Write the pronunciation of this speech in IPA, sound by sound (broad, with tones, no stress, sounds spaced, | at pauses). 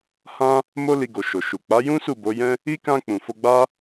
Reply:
h ã˦ | m o˦ l i˧ ɡ o˨ ʃ o˨ ʃ u˨ k͡p a˨˦ j ũ˦ s u˦˨ b o˨˦ j ɛ̃˦ | i˦ k ã˧ k͡p ũ˨ f o˧ ɡ͡b a˦